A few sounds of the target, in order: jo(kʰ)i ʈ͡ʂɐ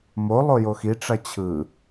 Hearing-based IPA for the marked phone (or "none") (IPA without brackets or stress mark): x